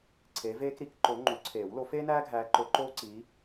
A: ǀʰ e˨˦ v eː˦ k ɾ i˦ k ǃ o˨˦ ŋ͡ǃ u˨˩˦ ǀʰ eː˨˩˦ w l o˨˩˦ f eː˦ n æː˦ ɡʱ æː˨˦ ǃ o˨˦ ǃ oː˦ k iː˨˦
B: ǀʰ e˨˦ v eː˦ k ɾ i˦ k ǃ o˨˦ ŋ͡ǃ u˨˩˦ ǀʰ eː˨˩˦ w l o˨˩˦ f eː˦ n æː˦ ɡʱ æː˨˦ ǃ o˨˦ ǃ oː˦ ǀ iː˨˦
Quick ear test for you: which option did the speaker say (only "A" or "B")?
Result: B